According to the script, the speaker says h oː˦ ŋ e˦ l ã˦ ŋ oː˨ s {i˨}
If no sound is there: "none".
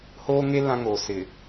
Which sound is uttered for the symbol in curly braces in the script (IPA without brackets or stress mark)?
ɪ˨